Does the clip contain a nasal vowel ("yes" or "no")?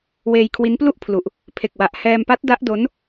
no